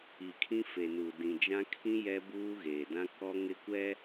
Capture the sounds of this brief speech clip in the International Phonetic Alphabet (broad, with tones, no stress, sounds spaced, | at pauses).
i˨ kʰ ĩ˦ f e˨ n u˨ d ĩ˨ d͡ʒ ã˦ kʰ ĩ˦ j ɛ˦ b uː˦ ɣ eː˨ d ã˦ k ɔ˦ ŋ ɪ˦ kʷ ɛ˦